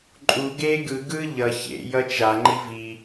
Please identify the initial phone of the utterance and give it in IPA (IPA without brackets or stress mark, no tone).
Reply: ǃʼ